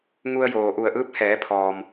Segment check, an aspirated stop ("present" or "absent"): present